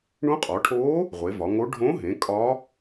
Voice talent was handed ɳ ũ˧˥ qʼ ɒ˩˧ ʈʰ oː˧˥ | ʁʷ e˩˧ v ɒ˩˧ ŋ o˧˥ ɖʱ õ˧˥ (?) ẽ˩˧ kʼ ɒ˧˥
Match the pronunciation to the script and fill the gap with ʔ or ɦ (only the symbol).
ɦ